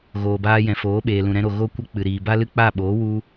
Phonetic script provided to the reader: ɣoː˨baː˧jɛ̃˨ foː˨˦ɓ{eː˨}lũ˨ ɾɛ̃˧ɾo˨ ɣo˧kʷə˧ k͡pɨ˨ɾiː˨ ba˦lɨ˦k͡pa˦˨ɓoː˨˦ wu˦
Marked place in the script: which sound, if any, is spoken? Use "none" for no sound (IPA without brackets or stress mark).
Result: eː˨